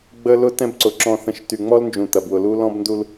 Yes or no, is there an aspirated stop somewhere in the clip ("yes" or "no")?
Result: no